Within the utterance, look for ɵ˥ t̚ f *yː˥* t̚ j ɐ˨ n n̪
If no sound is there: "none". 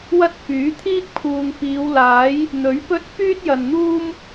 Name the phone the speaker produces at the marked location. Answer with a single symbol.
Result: yː˥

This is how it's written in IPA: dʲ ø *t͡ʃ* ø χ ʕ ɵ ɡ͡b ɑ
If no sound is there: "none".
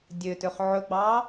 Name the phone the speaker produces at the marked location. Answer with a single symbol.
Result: t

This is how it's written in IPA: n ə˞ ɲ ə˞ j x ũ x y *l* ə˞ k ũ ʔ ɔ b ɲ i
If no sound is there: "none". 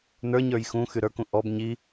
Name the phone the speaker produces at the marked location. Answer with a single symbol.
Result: ɾ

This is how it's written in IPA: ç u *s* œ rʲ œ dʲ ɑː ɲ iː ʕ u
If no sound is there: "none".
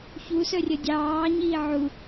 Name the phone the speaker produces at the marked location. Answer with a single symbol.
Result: s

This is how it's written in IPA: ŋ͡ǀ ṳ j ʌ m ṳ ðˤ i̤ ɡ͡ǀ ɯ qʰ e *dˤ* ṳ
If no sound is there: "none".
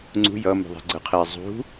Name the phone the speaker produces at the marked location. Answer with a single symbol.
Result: zˤ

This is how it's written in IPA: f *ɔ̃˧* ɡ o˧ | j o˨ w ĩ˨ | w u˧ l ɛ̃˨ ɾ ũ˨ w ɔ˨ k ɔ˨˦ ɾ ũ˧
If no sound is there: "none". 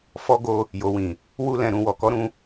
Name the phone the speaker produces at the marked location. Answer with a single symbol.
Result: ɔ˧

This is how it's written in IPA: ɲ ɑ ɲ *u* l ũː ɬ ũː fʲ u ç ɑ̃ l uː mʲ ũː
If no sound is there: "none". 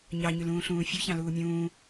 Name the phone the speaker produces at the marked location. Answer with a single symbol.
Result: y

